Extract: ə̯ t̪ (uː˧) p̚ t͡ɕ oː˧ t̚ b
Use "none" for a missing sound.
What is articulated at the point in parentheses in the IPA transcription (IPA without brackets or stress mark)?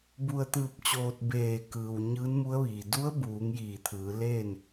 ɯː˧